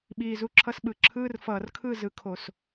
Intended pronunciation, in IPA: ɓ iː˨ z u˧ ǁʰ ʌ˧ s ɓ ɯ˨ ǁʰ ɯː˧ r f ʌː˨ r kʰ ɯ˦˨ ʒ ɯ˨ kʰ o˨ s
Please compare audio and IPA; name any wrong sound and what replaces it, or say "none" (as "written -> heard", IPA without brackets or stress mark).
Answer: ʒ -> z